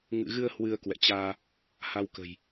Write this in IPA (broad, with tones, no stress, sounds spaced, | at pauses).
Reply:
ŋ ɨ̰˧˨ ɣ ɨ˧ ə̯ h w ɨ˧ ə̯ k w ɛ̰˧˨ t͡ɕ aː˧ | h a˧ w k ə̤˨˩ j